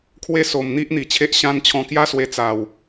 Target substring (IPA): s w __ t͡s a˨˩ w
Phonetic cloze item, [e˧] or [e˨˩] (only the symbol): e˧